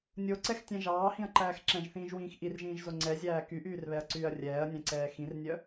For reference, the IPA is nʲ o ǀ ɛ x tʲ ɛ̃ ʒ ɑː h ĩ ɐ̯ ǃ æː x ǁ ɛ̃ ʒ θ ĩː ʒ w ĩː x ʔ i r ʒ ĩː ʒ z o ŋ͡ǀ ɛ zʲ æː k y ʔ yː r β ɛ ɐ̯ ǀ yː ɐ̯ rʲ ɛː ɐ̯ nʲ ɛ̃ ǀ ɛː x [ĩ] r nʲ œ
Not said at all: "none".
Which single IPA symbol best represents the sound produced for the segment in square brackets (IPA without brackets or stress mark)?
ĩ